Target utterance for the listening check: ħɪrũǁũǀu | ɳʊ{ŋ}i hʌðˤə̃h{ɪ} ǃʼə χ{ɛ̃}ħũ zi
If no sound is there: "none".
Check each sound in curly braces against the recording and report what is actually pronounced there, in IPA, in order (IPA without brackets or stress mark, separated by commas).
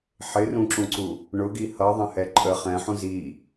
ɡ, ɛ, ɛ̃